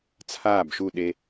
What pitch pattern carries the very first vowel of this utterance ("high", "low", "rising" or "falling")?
falling